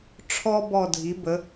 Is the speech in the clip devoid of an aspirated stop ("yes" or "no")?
no